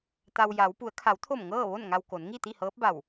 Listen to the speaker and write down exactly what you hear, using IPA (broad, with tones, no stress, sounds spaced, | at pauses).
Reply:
t̪ a˧ w j a˩˧ w p u˩˧ ə̯ kʰ a˩˧ w t̪ʰ o˧˩ m ŋ ɤː˥˨ ʋ o˥˨ n ŋ a˧ w k o˩˧ n ŋ i˥˨ t̪ i˥˨ h ɤː˧˥ p̚ b a˧˩ w